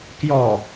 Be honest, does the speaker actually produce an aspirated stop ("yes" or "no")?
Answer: no